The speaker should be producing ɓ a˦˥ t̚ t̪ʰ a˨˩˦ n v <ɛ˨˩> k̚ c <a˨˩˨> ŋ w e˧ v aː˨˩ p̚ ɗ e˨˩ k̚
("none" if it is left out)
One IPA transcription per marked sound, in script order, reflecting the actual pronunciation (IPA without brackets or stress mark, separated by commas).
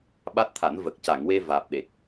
ə˨˩, a˨˩˨